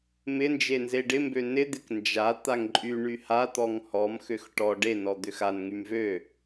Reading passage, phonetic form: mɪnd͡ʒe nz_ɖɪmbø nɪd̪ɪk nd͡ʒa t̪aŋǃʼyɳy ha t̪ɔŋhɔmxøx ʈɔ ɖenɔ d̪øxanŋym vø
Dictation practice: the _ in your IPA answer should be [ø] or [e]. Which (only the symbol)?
e